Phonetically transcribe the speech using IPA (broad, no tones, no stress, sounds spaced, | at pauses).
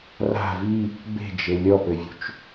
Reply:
r a̤ v i | b e̤ d͡ʒ e lʲ ɔ p ɘ vʲ ṳ t͡ʃ